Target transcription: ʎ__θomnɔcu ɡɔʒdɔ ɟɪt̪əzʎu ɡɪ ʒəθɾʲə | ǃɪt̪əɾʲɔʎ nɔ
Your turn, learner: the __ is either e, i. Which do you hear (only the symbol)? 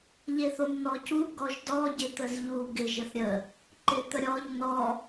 e